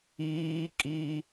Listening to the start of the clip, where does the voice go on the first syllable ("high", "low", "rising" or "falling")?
high